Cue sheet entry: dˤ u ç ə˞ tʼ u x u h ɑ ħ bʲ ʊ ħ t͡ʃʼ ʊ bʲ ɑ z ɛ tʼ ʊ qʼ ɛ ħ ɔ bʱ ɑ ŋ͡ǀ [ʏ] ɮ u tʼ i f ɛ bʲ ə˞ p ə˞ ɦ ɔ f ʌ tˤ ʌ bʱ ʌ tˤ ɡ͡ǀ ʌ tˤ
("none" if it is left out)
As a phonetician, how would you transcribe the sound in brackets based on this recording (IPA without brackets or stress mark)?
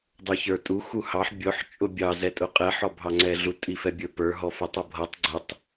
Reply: ɛ